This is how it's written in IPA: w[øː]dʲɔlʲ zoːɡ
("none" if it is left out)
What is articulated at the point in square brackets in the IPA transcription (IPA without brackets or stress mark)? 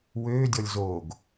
øː